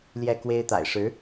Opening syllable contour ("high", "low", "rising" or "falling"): falling